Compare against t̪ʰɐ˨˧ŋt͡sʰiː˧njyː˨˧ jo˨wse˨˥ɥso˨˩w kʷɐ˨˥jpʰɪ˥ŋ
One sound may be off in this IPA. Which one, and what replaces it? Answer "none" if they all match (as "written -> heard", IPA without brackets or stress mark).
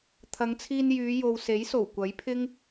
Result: ɥ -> j